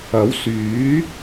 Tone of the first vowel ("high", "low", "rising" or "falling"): rising